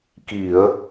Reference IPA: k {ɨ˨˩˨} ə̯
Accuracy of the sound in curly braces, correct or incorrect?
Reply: incorrect: i˨˩˨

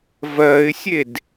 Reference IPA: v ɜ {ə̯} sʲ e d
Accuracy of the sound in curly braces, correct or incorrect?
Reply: incorrect: ɪ̯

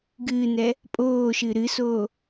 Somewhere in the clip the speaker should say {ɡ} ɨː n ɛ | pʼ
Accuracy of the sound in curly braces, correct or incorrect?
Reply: correct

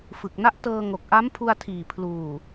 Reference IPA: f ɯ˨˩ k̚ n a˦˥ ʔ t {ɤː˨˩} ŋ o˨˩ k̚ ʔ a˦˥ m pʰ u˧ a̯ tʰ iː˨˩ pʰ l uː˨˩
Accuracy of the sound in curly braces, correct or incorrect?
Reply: incorrect: ɤː˧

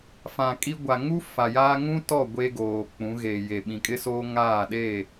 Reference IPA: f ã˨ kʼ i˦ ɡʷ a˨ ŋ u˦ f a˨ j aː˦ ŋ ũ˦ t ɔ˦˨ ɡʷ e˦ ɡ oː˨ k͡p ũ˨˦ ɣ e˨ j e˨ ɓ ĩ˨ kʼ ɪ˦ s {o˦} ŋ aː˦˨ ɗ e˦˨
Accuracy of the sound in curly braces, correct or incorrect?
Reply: incorrect: oː˦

